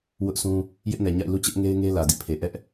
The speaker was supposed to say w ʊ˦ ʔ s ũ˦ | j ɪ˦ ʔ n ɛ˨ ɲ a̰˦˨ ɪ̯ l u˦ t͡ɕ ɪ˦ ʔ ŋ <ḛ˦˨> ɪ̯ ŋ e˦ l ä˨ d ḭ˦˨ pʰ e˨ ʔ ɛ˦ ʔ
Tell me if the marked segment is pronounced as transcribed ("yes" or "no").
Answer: no